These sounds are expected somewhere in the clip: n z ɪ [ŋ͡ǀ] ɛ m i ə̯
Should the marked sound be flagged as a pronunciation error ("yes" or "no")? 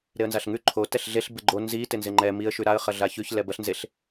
yes